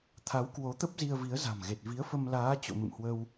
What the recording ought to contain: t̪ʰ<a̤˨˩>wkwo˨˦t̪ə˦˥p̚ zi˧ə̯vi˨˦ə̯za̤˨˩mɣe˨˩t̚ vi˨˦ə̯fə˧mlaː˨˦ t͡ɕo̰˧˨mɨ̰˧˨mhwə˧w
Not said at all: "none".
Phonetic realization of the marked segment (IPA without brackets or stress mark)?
a˨˦